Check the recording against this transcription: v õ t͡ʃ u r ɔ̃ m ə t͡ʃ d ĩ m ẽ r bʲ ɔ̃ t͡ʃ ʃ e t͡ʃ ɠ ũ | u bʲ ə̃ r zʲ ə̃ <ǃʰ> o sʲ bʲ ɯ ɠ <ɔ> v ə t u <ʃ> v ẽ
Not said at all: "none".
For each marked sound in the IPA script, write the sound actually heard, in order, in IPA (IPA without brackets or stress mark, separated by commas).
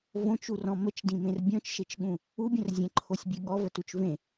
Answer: ǃʰ, ɔ, t͡ʃ